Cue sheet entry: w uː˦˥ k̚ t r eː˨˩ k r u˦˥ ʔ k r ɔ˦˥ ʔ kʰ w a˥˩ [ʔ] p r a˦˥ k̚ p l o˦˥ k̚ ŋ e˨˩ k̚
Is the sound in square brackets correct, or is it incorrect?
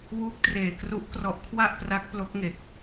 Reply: correct